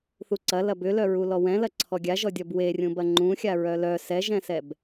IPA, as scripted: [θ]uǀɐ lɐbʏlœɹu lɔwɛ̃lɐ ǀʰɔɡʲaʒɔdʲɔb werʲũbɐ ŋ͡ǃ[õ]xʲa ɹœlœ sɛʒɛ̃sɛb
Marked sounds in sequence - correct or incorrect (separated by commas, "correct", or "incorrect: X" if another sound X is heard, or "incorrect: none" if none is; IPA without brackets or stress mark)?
correct, incorrect: ũ